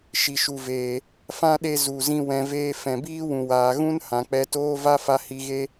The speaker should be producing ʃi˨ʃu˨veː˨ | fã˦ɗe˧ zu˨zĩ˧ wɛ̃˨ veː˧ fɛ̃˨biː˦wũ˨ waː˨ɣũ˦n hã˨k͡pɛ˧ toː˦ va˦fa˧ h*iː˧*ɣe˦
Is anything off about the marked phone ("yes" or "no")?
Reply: yes